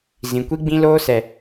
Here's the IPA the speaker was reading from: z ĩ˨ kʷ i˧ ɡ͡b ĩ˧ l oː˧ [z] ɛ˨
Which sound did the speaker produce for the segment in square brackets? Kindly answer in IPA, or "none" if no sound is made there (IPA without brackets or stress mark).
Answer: s